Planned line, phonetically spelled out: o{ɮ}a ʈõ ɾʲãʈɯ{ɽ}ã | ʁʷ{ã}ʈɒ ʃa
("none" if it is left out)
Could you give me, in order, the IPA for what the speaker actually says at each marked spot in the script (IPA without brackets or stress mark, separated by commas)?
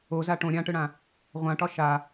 z, ɽ, ã